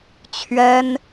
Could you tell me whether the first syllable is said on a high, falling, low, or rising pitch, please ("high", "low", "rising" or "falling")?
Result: high